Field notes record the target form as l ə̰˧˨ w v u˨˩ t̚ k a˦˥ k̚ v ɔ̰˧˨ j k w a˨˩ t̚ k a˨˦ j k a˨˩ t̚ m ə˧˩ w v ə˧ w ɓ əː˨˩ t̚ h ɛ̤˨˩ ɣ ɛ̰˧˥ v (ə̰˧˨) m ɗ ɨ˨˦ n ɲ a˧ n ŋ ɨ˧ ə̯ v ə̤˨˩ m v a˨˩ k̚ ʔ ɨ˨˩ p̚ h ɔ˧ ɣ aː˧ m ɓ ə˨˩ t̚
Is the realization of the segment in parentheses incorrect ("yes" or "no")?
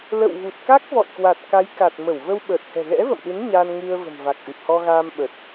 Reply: no